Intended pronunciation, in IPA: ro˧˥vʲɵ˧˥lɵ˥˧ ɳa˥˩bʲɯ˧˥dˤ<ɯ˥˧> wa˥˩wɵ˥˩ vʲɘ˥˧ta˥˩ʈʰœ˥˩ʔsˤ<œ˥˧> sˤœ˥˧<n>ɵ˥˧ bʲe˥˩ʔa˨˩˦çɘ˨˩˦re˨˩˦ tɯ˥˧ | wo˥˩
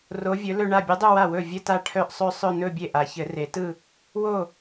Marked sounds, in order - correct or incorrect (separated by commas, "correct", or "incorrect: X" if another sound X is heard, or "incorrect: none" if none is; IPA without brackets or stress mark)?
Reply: correct, correct, correct